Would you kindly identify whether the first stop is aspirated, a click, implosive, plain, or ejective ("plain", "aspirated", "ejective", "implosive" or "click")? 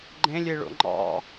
click